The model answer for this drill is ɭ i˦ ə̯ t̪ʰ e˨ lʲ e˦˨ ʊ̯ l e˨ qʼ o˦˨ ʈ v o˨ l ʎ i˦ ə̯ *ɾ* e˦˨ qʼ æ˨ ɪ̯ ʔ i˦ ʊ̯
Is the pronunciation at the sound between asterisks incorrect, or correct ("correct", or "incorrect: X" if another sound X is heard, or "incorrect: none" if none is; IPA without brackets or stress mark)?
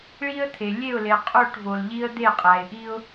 incorrect: d̪